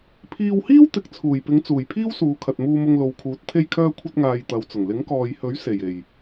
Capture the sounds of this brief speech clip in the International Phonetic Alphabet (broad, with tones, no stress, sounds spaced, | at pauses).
pʰ iː˧ w h iː˥ w t̪ ɪ˨ k̚ t͡sʰ uː˨˩ j p ɪ˨˧ ŋ t͡s uː˨˩ j pʰ iː˥ w s uː˨ kʰ ɐ˨ t̚ m uː˧ m ʊ˧ ŋ l o˨ w kʰ uː˨˥ t̚ t̪ʰ e˥ j kʰ œː˥ kʷʰ ɐ˥ t̚ ŋ aː˧ j t̪ ɐ˨˧ w t͡s ʊ˨˩ ŋ l ɪ˨˥ ŋ k ɔː˨ j h ɵ˨˥ ɥ s e˨˩ j e˨˩ j